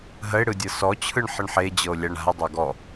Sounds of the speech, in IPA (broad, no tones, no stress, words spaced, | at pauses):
ɦəe̯ɽɯ dʲɤsɔt͡ɕʰɯɳ ħəɳħed͡ʑɤo̯ lʲaɳa̤e̯dˤɤ ɡɔ